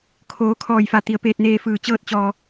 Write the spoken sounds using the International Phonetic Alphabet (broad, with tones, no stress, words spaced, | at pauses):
kʰoː˩˧kʰɔː˧˩jfa˧˩ t̪i˩ə̯peː˧t̚neː˧fɯː˧˩ t͡ɕɤː˥˨t̚t͡ɕɔː˧